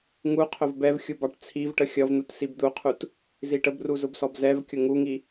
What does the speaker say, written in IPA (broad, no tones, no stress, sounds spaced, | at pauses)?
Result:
ŋ u qʰ ʊ v b ɛ v xʲ u b ɑ ʈ t͡sʰ i v ʈ ə xʲ ʌ v n̪ u t s i b d̪ u qʰ u t | z i ʈ ə b r u z ʊ b s ɔ b z ɛ v kʲ ʊ ŋ u ŋ i